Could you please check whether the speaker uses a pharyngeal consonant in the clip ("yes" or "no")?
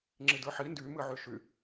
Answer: yes